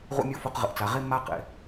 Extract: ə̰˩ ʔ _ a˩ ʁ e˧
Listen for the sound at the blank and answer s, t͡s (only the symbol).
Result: t͡s